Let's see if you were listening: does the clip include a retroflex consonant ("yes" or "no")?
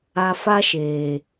no